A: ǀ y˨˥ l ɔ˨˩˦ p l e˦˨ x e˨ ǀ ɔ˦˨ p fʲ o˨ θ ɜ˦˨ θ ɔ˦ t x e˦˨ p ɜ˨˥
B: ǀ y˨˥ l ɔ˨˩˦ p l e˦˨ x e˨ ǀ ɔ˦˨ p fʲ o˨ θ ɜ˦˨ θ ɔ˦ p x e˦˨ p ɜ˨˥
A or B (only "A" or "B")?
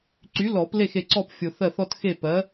A